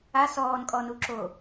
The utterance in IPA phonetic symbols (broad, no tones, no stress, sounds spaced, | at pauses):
a s ɔː n kʼ ɔ n u ǁ o